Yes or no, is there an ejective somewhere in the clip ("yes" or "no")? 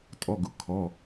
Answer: yes